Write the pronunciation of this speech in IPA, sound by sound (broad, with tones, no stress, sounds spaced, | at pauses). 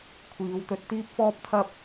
kʷʰ iː˨˧ w t̪ ɵ˧ t̚ t̪ iː˥ p̚ f ɔː˥ p̚ t̪ʰ ɐ˥ p̚